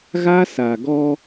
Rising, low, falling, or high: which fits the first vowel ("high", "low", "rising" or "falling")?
high